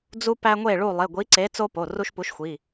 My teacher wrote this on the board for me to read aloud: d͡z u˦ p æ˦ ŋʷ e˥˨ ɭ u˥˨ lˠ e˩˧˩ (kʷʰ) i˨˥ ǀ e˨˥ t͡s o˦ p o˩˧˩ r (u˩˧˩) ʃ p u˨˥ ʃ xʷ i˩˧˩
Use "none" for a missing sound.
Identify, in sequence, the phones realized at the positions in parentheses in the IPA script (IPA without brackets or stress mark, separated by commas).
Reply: ɡʷ, u˦